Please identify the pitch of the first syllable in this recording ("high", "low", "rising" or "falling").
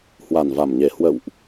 low